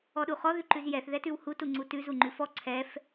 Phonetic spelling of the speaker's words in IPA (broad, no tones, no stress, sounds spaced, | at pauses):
ɔ ɗ u χ ɔ ð ʉ ǃ ʉ z j ɛ θ ð ɛ t ʉ w h u t u ŋ͡ǀ u t ʉ z u ŋ͡ǃ ʉ f ɔ ǀʰ ɛ f